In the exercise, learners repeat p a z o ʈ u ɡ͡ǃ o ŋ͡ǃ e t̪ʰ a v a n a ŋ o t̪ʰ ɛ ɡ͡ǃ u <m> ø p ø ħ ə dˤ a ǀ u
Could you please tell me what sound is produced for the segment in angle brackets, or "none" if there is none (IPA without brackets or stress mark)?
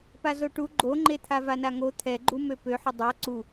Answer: m